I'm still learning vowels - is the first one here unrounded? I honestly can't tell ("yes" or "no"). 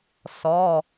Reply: no